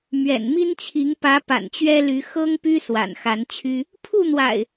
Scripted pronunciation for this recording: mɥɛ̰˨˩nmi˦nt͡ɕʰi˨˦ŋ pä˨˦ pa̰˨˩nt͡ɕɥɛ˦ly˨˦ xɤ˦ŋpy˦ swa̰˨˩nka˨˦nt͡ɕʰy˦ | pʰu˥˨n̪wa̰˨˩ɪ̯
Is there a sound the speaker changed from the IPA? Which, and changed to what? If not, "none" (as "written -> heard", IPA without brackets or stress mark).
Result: k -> x